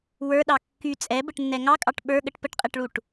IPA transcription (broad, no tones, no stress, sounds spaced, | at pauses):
w ə˞ ɗ ɑ kː y t͡sʼ ɛ b ə ʈ nː ɛ ŋ ɑ kʼ ɑ ʈ ɓ ə˞ ɠ ə ʈ p ə ʈ qʼ ɛ ʈ ɭ u ʈ